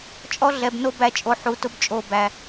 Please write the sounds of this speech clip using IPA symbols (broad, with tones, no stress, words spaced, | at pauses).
t͡ʃʼɔ˦ɮɛ˨bno˦ bæ˨t͡ʃʼo˨ ħu˨˦tʊ˦bt͡ʃʼo˦˨bæ˦